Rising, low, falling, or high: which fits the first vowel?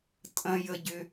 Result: high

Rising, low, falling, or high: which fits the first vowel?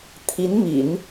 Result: rising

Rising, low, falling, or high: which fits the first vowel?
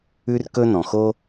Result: high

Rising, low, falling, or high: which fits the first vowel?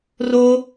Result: high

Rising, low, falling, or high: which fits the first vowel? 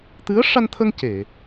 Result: rising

